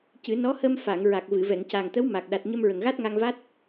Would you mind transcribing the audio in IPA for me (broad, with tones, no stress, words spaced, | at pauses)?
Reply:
cɨ˨˩˦nɔ˧˥hə˧m fa˨˩˨ŋ ɹa˨˩k̚vɨ˨˩˨vɛ˨˩˨ŋ ca˨˩ŋt̪ə˧˥w ma˨˩k̚ ɗa˨˩t̚ɲə˧mɹə˨˩ŋɣa˦˥t̚ ŋa˧ŋva˦˥t̚